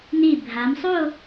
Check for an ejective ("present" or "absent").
absent